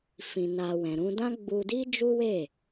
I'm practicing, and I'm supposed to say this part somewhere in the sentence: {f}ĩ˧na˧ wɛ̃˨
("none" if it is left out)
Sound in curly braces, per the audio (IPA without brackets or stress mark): f